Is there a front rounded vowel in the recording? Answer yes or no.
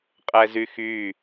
yes